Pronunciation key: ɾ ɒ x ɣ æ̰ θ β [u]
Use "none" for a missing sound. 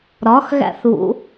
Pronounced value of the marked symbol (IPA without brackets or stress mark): ṵ